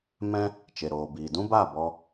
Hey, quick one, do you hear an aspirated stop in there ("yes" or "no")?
no